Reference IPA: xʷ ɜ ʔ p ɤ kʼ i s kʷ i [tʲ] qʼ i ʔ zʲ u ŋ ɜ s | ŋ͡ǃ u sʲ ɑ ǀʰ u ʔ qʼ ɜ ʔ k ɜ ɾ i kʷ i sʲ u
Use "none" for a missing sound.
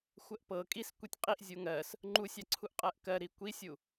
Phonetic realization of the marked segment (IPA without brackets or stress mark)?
tʲ